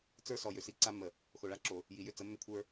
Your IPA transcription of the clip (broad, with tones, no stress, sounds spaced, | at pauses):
t͡s ə˞˦ s ɔ˨ j ʏ˨ s i˦ ǀ a˦ mː ə˨ | x o˨ ɭ a˦ ǁ o˨ | j i˨ j ʏ˦ t͡s ə˨˦ mː ʏ˦ kʷʰ ə˞˦